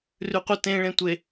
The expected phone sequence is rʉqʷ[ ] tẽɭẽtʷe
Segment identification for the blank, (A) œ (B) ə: B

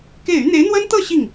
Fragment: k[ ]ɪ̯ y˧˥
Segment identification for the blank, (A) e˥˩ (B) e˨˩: A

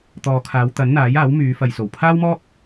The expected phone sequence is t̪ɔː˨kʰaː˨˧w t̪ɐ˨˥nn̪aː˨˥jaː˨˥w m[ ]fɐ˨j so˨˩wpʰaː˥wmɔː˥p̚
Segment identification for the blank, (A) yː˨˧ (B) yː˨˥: A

